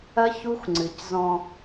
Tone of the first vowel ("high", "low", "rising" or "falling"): high